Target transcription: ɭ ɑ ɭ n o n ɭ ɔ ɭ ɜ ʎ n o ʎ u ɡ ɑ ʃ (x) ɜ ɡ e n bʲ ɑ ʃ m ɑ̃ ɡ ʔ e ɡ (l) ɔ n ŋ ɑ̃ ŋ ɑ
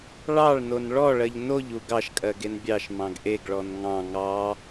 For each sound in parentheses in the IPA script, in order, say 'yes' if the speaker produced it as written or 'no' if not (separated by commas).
no, no